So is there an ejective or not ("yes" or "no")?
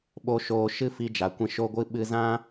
no